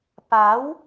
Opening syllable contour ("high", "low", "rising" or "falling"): rising